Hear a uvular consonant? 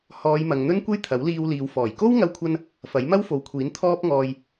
no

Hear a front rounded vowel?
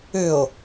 yes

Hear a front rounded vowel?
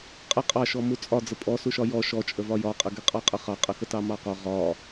no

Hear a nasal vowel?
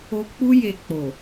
no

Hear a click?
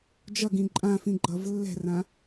yes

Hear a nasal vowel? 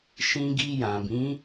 yes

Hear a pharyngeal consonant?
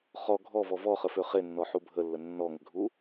yes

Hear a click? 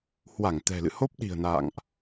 no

